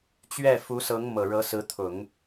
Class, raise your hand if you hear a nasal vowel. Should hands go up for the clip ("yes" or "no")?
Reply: no